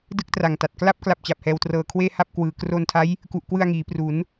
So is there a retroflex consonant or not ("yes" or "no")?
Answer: no